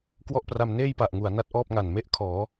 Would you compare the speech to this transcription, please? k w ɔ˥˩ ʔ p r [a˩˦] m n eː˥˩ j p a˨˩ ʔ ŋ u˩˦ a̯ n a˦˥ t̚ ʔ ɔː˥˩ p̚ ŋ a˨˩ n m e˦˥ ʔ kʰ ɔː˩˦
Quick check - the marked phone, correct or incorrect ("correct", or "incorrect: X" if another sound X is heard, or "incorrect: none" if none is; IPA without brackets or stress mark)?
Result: incorrect: a˧